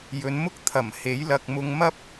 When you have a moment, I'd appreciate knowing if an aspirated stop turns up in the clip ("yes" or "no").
yes